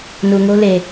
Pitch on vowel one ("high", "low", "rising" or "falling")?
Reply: low